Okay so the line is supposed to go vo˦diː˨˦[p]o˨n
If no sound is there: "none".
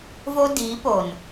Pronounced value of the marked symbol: p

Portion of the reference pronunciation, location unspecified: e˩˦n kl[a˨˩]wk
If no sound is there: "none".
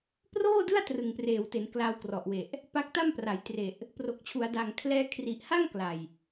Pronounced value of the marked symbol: a˧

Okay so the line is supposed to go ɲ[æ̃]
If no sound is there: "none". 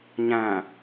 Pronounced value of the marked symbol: æ̃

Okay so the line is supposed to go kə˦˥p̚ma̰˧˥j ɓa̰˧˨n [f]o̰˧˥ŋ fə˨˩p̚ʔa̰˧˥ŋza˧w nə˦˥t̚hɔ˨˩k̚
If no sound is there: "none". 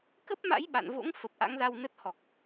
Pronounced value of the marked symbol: v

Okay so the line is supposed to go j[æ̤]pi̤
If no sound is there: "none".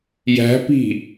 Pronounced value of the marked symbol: æ̤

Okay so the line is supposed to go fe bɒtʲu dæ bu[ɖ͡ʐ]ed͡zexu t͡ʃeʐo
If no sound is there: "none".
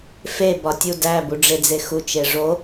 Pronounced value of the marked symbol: ɖ͡ʐ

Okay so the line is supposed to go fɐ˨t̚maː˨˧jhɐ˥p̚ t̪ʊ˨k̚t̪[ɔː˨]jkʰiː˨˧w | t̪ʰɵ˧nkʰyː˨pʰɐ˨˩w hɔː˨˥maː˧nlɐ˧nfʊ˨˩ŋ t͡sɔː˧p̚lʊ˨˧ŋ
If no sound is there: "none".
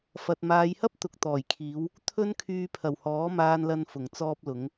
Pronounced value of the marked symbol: ɔː˨˩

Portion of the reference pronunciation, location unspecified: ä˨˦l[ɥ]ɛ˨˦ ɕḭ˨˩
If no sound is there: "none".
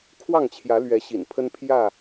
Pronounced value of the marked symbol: ɥ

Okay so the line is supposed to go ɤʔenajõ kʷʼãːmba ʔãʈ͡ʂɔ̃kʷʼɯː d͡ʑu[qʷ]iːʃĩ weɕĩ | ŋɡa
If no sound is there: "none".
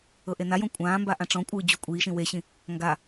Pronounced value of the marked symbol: kʷʼ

